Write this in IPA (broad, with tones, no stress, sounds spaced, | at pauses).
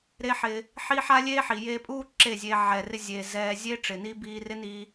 ɾ e˦ ħ ɪ˧ | ħ i˦ ħ a˦ lʲ eː˦ ħ i˨ j eː˧ pʼ uː˦ ǁ e˦˨ zʲ e˧ ʕ ɛː˨ r ɪ˧ zʲ eː˨ z ɛː˧ zʲ e˦ ʈ͡ʂ ɪ˨ n i˦ b iː˧ r ɪ˦ n i˧